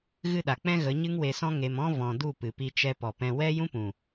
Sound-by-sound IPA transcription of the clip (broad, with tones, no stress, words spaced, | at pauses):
ɣɨ˦˨ɗa˨k͡pɛ̃˦ ɣə˨˦ɲɨ˦ŋwe˧sɔ̃˦ ŋe˧mɔ̃˦ vɔ̃˨ du˦˨pɨ˨pi˧ t͡ʃɛ˧ pɔ˨ pɛ̃˧ wɛ˦ jũ˦pũ˨